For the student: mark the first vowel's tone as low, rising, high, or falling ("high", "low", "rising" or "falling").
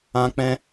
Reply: high